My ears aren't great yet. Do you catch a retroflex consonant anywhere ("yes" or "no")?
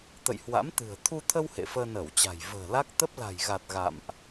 no